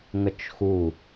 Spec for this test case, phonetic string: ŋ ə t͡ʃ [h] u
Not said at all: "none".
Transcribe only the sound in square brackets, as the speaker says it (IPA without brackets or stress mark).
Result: x